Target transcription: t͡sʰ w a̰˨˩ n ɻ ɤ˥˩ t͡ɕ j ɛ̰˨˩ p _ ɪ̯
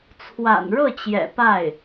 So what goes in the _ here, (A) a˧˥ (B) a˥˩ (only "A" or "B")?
B